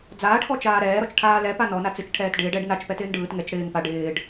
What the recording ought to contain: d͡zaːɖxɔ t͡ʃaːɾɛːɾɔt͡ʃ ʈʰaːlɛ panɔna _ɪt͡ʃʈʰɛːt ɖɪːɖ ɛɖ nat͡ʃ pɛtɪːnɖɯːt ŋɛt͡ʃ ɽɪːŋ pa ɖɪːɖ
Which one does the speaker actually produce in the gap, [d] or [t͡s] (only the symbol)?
t͡s